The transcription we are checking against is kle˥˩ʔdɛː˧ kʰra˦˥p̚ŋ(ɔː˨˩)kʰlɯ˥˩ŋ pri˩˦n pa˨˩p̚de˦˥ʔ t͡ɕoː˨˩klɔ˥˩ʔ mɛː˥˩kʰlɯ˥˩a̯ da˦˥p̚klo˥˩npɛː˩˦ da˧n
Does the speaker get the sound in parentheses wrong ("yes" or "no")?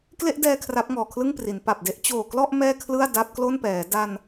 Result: no